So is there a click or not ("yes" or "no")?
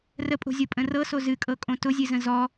no